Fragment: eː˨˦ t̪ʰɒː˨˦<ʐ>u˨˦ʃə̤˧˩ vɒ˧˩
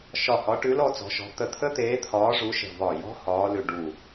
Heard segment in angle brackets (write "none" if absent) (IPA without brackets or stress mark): ʐ